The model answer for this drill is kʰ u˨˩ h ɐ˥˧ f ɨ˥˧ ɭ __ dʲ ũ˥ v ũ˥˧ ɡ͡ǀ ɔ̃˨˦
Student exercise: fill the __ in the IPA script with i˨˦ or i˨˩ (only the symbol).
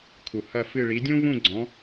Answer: i˨˦